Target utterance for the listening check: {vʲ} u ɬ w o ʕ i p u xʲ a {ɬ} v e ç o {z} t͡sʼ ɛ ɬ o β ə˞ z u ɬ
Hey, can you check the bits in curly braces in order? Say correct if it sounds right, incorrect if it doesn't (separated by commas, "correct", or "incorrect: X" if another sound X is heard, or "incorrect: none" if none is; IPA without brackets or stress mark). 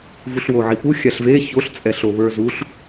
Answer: incorrect: v, correct, incorrect: ɬ